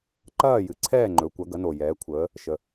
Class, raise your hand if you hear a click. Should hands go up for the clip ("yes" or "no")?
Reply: yes